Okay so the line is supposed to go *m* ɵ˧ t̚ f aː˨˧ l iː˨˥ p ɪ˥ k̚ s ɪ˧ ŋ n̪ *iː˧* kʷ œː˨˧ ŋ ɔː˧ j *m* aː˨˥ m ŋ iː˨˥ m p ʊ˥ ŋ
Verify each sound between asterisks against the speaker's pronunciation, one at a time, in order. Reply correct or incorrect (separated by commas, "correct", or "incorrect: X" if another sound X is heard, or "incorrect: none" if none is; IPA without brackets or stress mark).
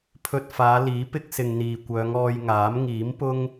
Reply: incorrect: pʰ, incorrect: iː˨, incorrect: ŋ